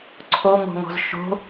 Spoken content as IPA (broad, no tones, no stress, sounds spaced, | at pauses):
ǀʰ o ŋ o̤ ŋ ɔ̤ z ʃ o̤